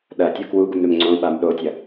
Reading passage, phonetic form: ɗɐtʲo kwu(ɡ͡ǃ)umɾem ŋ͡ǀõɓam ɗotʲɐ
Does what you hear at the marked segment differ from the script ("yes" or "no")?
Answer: yes